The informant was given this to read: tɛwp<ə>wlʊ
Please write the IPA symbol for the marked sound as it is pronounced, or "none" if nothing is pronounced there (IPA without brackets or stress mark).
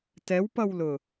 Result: ʌ